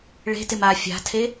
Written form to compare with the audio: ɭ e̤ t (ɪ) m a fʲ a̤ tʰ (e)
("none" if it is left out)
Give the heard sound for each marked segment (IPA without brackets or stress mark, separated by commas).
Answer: ɪ, e